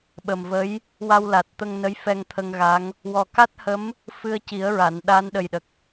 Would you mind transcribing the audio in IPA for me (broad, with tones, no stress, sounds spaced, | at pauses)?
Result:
ɓ ə˨˩ m v ə˧˥ j | w a˧ w l a˨˩ t̚ t̪ ə˧ ŋ n ə˧˥ j f ɛ˧ ŋ t̪ʰ ə˧ ŋ ɣ a˧˥ ŋ | w ɔ˨˩ k a˦˥ t̚ h ə˧˥ m | f ɨ˧ ə̯ c i˨˩˦ ə̯ ɹ a˨˩˨ n ɗ a˧˥ n ɗ ə˨˩ j ɗ ə˨˩ k̚